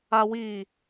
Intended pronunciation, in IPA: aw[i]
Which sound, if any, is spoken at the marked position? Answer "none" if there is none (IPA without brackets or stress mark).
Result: i